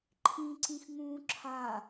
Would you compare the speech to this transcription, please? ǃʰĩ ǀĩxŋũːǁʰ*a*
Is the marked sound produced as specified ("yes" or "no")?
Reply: yes